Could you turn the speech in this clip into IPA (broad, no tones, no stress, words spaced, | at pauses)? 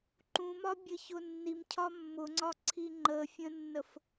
ǃũmɒbʲə çʊnːimcʰɒ mːʊŋ͡ǀɒǀʰi ŋ͡ǃəfʲə̃nːəf